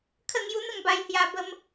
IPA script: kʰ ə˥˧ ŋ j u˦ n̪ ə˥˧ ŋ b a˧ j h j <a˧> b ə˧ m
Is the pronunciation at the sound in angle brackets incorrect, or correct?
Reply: correct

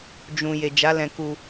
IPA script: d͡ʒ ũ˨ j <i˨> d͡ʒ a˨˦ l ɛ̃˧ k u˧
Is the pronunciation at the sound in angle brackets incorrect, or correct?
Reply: incorrect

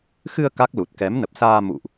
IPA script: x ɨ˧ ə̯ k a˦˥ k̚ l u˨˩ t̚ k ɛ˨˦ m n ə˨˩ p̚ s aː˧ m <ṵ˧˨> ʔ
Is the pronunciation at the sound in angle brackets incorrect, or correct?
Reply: correct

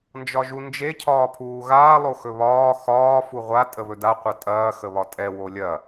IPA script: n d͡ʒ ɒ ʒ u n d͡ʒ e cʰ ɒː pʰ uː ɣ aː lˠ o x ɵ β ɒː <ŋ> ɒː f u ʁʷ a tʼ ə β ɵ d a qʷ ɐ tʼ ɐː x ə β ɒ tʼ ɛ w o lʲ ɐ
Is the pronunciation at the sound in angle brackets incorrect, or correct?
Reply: incorrect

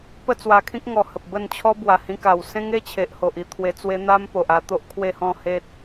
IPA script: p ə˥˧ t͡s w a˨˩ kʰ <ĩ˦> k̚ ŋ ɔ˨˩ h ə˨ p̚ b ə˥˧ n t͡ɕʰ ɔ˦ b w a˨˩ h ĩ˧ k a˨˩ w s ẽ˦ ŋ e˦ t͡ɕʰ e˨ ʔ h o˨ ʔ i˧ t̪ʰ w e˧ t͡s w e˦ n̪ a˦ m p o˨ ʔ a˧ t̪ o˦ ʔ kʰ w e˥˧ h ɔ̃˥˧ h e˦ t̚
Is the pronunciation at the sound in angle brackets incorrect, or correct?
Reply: correct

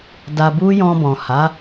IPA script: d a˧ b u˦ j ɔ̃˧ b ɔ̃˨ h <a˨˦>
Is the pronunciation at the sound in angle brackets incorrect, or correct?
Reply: correct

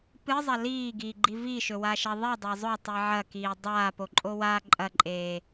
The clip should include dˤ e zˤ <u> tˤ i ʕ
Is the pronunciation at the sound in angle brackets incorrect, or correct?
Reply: incorrect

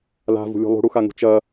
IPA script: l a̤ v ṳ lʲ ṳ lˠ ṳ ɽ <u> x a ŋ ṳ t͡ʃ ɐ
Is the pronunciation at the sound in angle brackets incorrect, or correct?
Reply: correct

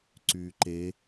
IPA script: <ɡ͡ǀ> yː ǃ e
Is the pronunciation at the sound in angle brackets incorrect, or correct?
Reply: incorrect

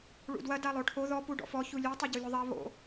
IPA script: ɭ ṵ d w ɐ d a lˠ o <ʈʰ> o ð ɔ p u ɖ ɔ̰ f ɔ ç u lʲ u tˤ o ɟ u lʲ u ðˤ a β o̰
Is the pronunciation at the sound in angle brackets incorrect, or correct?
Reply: correct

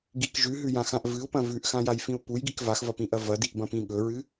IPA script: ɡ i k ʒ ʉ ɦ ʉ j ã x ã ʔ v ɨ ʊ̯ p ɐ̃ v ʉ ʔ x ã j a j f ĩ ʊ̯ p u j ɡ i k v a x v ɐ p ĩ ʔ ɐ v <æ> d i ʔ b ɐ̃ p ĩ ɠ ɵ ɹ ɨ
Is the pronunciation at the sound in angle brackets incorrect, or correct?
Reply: incorrect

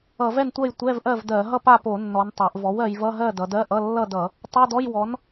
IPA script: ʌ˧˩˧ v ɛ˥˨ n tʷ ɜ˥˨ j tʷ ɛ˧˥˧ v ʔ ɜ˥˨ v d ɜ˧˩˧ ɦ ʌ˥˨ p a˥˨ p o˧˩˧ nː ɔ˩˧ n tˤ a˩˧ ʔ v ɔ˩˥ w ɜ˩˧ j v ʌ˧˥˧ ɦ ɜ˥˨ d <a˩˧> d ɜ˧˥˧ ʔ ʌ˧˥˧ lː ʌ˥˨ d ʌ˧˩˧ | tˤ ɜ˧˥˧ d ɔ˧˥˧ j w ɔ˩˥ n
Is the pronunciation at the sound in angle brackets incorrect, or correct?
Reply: incorrect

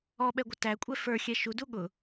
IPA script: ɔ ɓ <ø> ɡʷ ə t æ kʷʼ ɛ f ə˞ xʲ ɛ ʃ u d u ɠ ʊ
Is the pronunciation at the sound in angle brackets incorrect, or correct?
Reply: incorrect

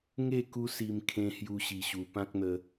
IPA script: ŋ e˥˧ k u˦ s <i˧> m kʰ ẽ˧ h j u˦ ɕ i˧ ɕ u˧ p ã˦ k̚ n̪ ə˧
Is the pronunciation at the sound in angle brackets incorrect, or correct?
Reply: correct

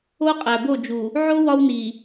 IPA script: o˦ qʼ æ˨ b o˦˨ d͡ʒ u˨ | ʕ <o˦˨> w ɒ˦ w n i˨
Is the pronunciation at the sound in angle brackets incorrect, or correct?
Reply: incorrect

